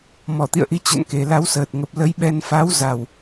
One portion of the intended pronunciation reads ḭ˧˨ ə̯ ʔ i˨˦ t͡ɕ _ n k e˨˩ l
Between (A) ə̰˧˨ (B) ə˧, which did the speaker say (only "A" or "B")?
A